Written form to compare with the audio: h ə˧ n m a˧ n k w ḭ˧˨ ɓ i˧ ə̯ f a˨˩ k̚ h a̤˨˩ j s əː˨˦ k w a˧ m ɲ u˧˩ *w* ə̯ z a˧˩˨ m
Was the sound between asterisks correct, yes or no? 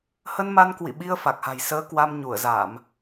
no